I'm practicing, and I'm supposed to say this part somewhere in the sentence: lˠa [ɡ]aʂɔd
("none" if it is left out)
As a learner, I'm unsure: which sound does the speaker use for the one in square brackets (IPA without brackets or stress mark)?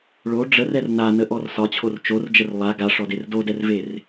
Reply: ɡ